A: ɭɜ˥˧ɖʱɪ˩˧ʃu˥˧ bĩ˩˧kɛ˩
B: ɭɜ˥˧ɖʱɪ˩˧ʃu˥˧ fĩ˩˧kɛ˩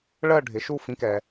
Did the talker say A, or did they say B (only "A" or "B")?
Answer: B